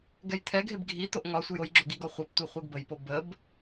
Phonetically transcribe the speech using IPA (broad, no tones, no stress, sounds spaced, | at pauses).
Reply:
ɡ ɛ j t̪ʰ ɛ ɡʱ e b ɡʱ i t̪ o ʔ ŋ ɒ sʷ ə j o j ɡ͡ǁ o ɡ i ɡ ɒ χʷ e p tʷ e χʷ e ɡ b ə j p o b ə b